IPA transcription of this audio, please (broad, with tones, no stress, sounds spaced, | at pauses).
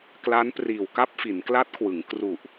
k l a˦˥ n p r iː˨˩ w k a˥˩ p̚ f i˩˦ n k l a˦˥ t̚ kʰ w ɯ˩˦ ŋ k r u˨˩ ʔ